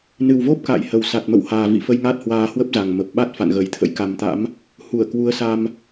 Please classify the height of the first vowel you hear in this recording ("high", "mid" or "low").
high